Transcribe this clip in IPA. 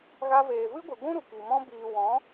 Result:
ɣ a˧ v eː˨ v ɨ˦ ɡʷ ɨ˨ ɡʷ ũ˦ ɾ u˨ k i˨ m ɔ̃˧ b iː˨ w ɔ̃˨˦

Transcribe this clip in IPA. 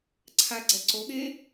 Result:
ǀʰ a ɡ͡ǀ ɛ ǀ o ɠ e

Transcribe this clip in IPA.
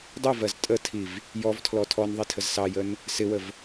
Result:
dˤ u v ɜ z tʼ ə tʰ i v | j ɔ v tʰ l ɔ tʰ ɔ n ðˤ i tʰ ə z s ɑ j ə n | s ɪ w ə v

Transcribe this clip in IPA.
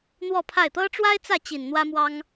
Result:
n̪ w ɔ˥˧ pʰ a˥˩ ɪ̯ t̪ ɤ˥ ʈ͡ʂ w a˥ ɪ̯ t͡s ä˥˩ t͡ɕ i˨˩ n n̪ w ä˥ m w ɑ˥ ŋ

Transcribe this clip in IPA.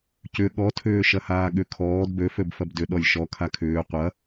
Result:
c ʏ ɠ ɔ tʰ ʏː ʃ ɐ h aː ɠ ʏ kʰ ɔː d b ø f ø b f ɐ b d ʏ ɗ ɔ lʲ ʃ ɔ kʰ a kʰ ʏː qʷ ɐ

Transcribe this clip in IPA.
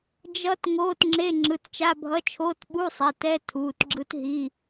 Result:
d͡ʒ ʌ˦˥ t ŋ oː˧˥˧ t ŋ͡ǁ e˧˥˧ ŋ͡ǁ ɯ˩˧˩ t t͡ʃ a˧˥˧ bʱ ʌ˧˥˧ t͡ʃʰ oː˧˥˧ t ɓ u˧˥˧ sˤ ɛ˩˧˩ t ɛ˧˥˧ tʰ uː˩˧˩ t ɡ͡ǁ ɯ˦˥ t ɦ i˩˧˩

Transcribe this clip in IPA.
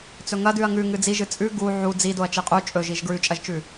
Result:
t͡s ɵ ŋ ɐ d ʉ ɐ̯ ŋ ʉ ŋ ɨ d͡z i ʒ ɨ t͡sʼ ʉ ɡ u ʕ u d͡z i d o ɐ̯ t͡ʃ i qʼ u t͡ʃʼ ɵ ʒ i ʒ ɡ ɹ ʉ t͡ʃʼ ɐ ʒ t͡ʃ ʉ

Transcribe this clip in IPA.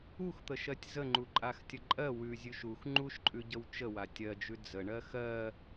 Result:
u x t̪ ə ʃ ɜ tʲ z ə ŋ͡ǃ u ǃʼ a x tʲ ə ǃʼ ɜ w ʉ zʲ ʉ ʃ u x ŋ͡ǃ u ʃ ǃʼ ʉ ɟ ə w t͡ʃ ə w a tʲ ɜ d͡ʒ ʉ d͡z ə ɳ ɜ x ɜ

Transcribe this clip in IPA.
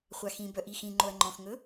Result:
χʷ a x ĩ b œ ʔ i x ĩ ŋ͡ǃ o ɐ̯ ŋ͡ǃ ɔ̃ x ŋ ɵ

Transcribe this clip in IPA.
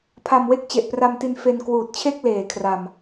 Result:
pʰ a˧ m w e˦˥ k̚ t͡ɕ e˨˩ ʔ p r a˧ m t i˧ n f e˧ n k w uː˨˩ t̚ t͡ɕʰ e˥˩ k̚ l eː˩˦ kʰ r a˨˩ m

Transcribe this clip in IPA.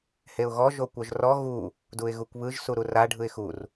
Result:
h e ʊ̯ ɣ ɔ ʒ o kʷ œ ʒ r ɔ ɣ u | d u ɪ̯ ɣ u kʷ β ɯ ʒ s u ɾ u r a ɖʱ ɯ ɪ̯ x u r

